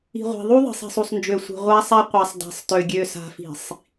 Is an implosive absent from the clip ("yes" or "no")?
yes